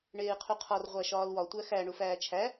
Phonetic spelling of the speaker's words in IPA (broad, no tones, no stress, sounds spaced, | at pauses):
ɳ eː qʰ u qʰ ɒ r ʁʷ æ ʃ ɒː l w ɒ tʷ æ x æ ɳ u f æː t͡ʃʰ æ